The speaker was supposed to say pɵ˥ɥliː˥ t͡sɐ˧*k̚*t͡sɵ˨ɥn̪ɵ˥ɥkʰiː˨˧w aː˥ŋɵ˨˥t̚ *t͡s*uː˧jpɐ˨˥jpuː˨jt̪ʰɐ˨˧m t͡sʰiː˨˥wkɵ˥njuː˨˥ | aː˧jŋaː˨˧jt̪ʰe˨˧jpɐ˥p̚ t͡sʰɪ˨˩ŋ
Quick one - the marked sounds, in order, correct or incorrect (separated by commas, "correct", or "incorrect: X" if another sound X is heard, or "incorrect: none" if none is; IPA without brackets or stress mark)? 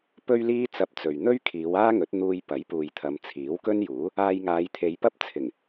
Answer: incorrect: p̚, incorrect: n̪